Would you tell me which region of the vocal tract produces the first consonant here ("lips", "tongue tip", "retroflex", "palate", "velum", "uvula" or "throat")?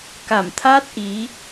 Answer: velum